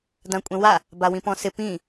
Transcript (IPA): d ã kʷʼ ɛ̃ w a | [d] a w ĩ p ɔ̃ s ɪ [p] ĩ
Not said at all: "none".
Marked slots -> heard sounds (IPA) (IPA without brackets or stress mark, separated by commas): b, p